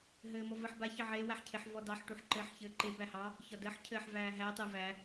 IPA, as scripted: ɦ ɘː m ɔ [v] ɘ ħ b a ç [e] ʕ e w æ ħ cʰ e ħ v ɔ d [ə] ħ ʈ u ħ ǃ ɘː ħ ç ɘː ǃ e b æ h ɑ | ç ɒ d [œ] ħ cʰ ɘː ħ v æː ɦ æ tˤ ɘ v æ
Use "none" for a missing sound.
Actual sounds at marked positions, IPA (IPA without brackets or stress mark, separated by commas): v, ɘ, ɑ, ə